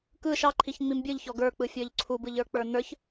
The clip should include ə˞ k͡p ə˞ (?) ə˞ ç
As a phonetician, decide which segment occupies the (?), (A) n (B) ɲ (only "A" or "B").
A